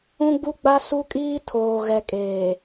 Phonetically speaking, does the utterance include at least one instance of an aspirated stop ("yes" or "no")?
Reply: yes